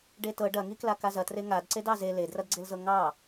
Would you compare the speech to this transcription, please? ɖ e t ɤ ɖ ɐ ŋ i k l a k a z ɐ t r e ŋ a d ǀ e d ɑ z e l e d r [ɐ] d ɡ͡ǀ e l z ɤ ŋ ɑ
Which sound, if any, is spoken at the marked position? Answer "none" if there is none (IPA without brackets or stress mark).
ɐ